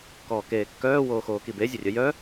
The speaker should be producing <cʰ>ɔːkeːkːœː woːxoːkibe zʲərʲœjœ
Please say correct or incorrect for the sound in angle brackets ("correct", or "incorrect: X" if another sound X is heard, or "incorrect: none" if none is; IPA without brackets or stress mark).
incorrect: k